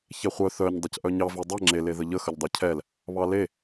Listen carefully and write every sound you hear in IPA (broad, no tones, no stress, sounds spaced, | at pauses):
ç ɛ χʷ œ θ œ ɲ dˤ ɤ c ʔ œ ɲ ɑ v e dˤ ɛ ŋ͡ǁ e l e ð ə ʎ ə x ə ʎ dˤ œ cʰ ɛ l | β ɑ l e